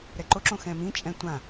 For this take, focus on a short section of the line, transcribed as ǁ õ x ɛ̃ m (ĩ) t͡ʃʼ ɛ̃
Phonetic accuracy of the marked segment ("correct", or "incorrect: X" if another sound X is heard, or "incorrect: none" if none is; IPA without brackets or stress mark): correct